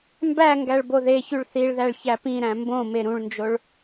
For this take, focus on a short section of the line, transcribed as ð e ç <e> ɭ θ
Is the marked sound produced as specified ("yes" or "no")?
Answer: no